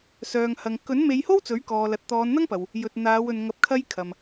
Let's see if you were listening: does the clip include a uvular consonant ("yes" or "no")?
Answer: no